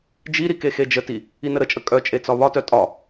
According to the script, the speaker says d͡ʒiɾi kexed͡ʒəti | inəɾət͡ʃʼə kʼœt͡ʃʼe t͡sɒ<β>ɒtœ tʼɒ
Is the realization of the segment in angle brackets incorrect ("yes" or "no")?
no